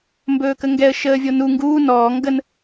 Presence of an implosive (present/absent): absent